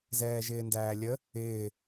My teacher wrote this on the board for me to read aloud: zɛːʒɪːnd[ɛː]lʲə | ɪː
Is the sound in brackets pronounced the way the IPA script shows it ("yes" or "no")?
no